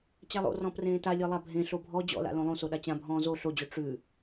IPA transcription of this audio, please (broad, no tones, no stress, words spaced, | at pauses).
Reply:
t͡ɕalˠo̰rɔ̃ prẽːta lʲelˠabʱẽ ɬobʱɔ d͡ʑɔ̰la̰ lõlˠõso ɗat͡ɕãbʱɔ̃ː zo ɬod͡ʑo ʈ͡ʂʉ